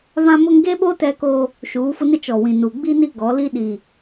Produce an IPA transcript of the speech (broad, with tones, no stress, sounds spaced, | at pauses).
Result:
β ã˦ m ʊ˦ ŋ ɡ e˦ ɓ o˦ t ɛ˦ k oː˦ | ʃ uː˨˦ f ʊ˦ n ɪ˦ t͡ʃ ɔ˨ w ĩ˨ n u˨ ɡ͡b i˦ n i˦ ɡ ɔ˨˦ l i˦ ɗ i˨